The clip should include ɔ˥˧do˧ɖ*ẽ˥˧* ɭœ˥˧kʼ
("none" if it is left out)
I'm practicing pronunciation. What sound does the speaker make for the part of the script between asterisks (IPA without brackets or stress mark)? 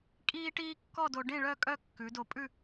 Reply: ẽ˥˧